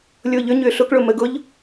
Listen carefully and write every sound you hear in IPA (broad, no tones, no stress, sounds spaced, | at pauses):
lʲ ʊː ʎ ʏ ɲ ʏː ɬ ʊ k ɭ ʊ m ə ɡ ʊ ʎ